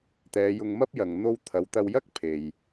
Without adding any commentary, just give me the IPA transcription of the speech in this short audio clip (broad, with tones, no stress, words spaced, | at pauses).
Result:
t̪ɛː˨˧jʊ˧ŋmɐ˥p̚jɐ˨ŋ n̪o˧wt̪ʰɐ˨˧wt̪ɐ˧wjɐ˥k̚ pʰe˨j